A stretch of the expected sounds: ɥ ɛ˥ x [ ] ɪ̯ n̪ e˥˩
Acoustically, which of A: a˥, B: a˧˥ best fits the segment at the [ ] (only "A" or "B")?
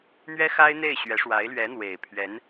A